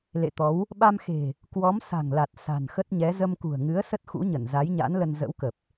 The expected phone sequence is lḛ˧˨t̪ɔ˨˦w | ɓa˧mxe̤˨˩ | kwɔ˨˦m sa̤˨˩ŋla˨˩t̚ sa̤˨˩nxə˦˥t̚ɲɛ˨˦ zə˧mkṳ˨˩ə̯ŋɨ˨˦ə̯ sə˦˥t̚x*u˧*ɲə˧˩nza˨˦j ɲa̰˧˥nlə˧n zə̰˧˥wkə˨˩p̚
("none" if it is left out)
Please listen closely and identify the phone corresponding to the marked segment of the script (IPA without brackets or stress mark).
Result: ṵ˧˥